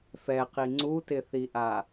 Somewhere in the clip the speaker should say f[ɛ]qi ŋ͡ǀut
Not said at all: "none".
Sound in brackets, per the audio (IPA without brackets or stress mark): ɛ